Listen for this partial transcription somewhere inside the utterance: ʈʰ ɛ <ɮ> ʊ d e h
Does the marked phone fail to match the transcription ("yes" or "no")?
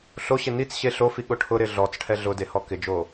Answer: no